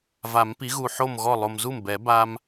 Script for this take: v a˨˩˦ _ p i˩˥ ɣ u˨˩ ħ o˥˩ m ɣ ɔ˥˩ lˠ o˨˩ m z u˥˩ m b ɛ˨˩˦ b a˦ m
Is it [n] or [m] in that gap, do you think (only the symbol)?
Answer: m